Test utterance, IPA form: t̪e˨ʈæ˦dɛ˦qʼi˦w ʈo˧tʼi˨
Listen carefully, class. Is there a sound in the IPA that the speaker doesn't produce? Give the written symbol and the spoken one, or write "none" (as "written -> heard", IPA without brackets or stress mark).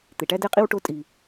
none